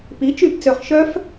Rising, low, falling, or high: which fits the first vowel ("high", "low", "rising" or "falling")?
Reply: rising